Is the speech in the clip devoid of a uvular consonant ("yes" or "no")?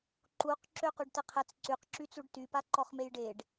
no